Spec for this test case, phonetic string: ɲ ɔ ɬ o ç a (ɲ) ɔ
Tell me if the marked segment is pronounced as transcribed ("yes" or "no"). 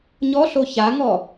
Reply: no